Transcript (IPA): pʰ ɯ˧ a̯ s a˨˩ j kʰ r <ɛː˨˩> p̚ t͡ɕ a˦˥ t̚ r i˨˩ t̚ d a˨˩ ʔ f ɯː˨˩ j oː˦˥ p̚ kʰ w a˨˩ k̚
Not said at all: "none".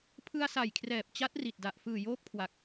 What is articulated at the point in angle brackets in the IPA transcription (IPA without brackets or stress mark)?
ɛː˨˩